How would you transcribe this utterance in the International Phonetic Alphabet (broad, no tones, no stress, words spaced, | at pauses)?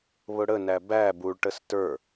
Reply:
βʊɽənæ bæ buɭʈəs tə˞